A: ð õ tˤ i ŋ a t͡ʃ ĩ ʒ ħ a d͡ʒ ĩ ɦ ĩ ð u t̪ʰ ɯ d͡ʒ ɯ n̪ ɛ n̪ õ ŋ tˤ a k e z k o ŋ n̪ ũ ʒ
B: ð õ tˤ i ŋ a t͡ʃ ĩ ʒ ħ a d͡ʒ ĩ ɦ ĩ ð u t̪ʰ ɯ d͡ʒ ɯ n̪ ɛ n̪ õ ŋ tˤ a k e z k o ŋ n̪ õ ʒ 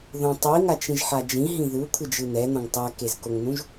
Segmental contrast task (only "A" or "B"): A